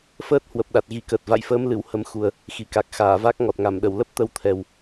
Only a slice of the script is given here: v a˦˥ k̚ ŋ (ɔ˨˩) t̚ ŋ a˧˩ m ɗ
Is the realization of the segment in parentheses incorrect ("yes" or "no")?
no